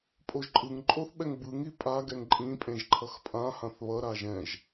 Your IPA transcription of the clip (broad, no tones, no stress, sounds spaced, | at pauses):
pʼ o ʒ ǃʼ ɯ ŋ ǃʼ o θ ɓ ɛ ŋ b ɯ ŋ i pʼ a ɡ ɛ ŋ ǃʼ ĩ pʼ ẽ ʒ ǃʰ ʌ x pʼ ã h ã θ β ʌ ɾ a ʒ ɛ̃ ʒ